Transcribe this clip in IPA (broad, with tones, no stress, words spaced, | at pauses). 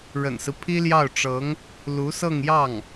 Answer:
ɻə̰˨˩nsɹ̩˦ pʰi˥ljɑ˥˩ʊ̯ʈ͡ʂɤ˧˥ŋ | lu˧˥sɤ˥˧ŋjɑ˥˩ŋ